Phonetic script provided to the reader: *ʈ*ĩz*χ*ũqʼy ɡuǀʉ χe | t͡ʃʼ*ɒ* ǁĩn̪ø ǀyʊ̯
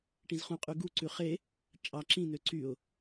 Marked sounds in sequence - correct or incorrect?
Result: correct, correct, incorrect: ɑ

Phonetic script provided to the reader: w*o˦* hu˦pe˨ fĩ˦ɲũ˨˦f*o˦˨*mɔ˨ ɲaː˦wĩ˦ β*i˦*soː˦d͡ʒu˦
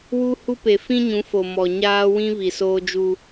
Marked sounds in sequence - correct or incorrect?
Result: incorrect: u˦, incorrect: o˨, incorrect: i˨

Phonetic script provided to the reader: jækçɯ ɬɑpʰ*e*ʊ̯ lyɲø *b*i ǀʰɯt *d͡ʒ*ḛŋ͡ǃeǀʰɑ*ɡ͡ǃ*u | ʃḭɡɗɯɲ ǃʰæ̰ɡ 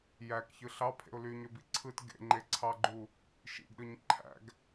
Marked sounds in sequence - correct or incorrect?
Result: incorrect: ḛ, correct, incorrect: ɡ, correct

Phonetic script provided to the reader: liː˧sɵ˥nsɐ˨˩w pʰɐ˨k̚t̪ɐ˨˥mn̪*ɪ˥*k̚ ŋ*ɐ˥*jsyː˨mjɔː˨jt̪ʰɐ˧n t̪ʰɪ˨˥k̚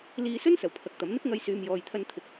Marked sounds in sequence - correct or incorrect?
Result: correct, incorrect: ɐ˧

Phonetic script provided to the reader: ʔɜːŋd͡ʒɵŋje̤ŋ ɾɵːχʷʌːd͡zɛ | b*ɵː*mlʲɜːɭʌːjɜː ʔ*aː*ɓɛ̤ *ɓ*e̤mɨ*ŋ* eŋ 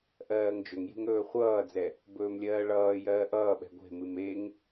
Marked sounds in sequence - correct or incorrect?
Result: correct, incorrect: ʌː, incorrect: ɡʷ, incorrect: m

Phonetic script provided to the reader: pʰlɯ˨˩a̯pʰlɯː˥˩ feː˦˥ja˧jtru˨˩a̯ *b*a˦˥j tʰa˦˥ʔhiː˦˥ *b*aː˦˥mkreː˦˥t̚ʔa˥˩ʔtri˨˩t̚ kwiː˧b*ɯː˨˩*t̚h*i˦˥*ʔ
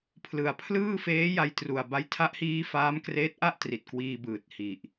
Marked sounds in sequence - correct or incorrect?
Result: correct, incorrect: f, correct, incorrect: i˨˩

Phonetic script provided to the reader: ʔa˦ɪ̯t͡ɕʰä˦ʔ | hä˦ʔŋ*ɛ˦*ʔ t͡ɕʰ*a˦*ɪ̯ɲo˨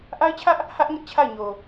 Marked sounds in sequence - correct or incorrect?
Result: incorrect: ɪ˦, incorrect: a˦˨

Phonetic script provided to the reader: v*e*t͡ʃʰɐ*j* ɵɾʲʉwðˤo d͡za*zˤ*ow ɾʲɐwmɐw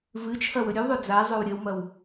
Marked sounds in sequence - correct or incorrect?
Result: incorrect: ɨ, incorrect: w, correct

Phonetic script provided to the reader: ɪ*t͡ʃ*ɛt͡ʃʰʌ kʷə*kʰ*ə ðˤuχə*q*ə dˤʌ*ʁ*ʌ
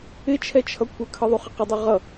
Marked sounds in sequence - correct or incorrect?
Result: incorrect: t͡ʃʰ, correct, correct, correct

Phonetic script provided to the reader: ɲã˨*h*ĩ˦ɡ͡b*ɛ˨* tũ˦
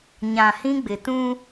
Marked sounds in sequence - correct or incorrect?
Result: correct, incorrect: ɪ˨

